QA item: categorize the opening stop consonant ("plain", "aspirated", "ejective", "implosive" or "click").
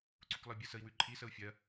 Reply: click